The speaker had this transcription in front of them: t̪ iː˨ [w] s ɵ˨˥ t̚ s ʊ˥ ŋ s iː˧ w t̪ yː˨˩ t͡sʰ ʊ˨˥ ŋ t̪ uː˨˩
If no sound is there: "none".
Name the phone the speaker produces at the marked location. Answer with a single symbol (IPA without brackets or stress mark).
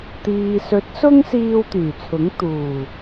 none